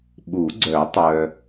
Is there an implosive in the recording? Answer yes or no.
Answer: yes